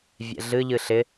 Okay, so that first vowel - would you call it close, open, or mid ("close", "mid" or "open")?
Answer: mid